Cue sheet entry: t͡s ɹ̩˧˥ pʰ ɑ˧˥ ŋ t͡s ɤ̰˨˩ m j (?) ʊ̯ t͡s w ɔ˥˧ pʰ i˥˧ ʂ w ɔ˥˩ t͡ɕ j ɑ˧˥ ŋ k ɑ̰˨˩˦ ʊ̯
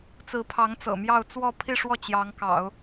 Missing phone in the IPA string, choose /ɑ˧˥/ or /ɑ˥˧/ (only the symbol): ɑ˥˧